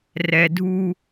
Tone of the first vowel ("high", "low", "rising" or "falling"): low